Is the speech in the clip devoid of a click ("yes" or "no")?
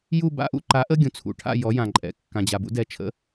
no